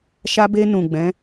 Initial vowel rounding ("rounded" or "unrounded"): unrounded